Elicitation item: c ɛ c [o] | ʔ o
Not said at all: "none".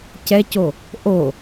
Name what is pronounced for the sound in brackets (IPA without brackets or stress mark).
o